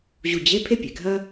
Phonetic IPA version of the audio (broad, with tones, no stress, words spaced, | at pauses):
ʑu˧˩ d͡ʑe˧˥˧ pʰe˥pʲe˩ɡʱɐ˥